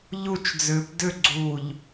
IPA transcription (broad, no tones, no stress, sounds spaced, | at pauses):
ʎ u t͡ʃ d͡z ʏː p d ʏ ɡ͡ǀ uː ʎ